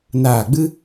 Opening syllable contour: falling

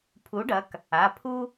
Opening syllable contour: rising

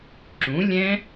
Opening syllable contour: rising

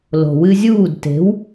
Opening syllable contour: low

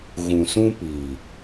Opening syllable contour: low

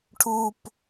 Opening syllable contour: high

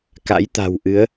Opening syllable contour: rising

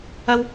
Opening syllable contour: high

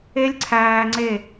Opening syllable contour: high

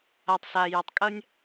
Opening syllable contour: low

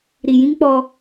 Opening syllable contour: low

